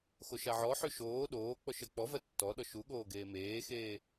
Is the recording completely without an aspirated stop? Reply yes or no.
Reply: yes